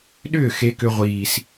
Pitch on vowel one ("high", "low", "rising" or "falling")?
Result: falling